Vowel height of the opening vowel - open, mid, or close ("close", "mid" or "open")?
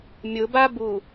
close